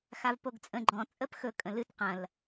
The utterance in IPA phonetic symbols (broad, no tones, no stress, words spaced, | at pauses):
xavpoɡt͡sʼə̃ ɡ͡ǃɔ̃ t͡sʼəpxɵ kʼə̃lɨt qɐ̃l